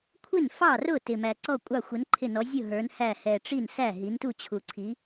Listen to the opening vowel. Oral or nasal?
oral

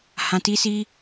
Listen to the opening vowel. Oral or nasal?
nasal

